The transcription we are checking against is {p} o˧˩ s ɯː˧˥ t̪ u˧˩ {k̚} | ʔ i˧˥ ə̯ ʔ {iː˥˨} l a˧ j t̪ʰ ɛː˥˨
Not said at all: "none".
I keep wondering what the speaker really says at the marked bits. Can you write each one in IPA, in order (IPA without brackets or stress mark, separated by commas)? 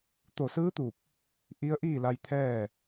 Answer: t̪, p̚, iː˥˨